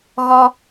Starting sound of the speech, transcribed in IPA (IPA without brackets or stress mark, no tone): ɣ